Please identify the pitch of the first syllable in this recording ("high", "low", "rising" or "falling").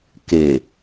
low